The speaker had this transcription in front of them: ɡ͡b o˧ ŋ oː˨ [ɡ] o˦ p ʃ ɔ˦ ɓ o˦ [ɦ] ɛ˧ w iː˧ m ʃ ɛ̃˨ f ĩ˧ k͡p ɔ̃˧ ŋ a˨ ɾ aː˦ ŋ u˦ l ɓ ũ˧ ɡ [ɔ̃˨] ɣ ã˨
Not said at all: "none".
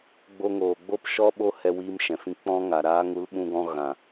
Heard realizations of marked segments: ɡ͡b, h, ɔ̃˧

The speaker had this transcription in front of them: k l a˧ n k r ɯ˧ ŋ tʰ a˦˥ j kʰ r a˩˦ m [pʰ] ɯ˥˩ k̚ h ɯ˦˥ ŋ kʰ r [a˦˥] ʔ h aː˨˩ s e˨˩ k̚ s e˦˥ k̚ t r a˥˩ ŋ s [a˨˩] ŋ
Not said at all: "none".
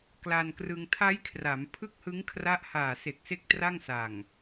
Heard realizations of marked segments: pʰ, a˦˥, a˨˩

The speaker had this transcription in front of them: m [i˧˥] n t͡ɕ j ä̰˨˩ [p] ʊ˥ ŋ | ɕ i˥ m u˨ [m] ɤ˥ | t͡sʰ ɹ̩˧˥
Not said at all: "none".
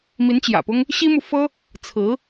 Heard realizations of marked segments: i˧˥, p, f

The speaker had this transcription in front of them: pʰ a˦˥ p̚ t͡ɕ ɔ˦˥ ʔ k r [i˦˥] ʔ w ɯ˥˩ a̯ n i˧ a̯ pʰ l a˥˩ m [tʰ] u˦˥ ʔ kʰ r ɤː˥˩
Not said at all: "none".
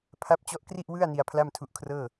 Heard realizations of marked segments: i˥˩, tʰ

